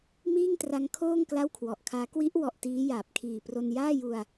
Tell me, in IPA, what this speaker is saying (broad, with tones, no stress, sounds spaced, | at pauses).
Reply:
m iː˥˩ ŋ t r a˦˥ ŋ kʰ oː˥˩ ŋ k l a˥˩ w kʰ w ɔ˨˩ ʔ kʰ aː˦˥ k w i˦˥ ʔ w ɔ˨˩ ʔ t iː˦˥ j aː˨˩ p̚ kʰ iː˨˩ p r o˧ n j aː˥˩ j u˧ a̯